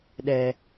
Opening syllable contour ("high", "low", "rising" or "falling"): low